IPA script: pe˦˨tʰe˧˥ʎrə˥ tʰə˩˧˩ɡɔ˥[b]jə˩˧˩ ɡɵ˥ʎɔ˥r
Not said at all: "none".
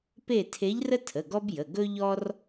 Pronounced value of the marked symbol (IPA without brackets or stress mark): b